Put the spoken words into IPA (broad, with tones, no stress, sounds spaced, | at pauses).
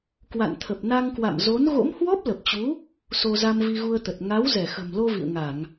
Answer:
k w a̰˧˨ n t̪ʰ ə˨˩ p̚ n a˧ ŋ k w a̰˧˨ m z o˨˦ n ɣ o̰˧˥ m h w ɔ˦˥ p̚ l ə˨˩ p̚ t͡ɕ u˨˦ | s o˧ z a˧ m v i˧ ɣ u˧ ə̯ t̪ ə˨˩ t̚ ŋ a˨˦ w z ɛ˧˩ x ə̤˨˩ m l o˧ v ḭ˧˨ ə̯ ŋ a˧˩˨ ŋ